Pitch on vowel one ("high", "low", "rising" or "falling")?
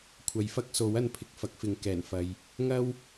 rising